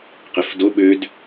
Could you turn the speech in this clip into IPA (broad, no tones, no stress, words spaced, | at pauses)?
qefdo ɓød